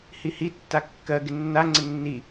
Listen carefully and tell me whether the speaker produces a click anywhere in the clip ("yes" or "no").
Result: yes